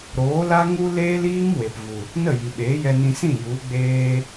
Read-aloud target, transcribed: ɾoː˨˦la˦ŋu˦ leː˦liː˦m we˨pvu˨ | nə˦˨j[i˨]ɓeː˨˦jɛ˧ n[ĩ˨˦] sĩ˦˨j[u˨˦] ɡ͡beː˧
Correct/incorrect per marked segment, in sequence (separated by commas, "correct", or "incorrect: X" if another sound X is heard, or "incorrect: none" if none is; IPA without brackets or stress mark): correct, incorrect: ĩ˧, correct